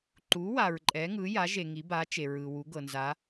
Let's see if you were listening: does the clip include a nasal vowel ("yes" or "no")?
no